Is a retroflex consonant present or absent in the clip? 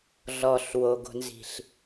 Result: absent